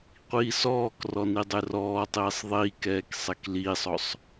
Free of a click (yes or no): yes